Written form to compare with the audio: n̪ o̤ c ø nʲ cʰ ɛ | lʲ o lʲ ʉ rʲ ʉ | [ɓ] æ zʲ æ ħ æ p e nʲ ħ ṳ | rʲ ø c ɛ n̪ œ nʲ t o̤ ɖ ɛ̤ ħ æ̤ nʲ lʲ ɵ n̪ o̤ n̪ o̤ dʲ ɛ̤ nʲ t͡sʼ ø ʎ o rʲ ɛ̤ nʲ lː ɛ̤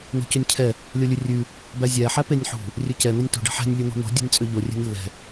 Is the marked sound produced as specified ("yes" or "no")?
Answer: no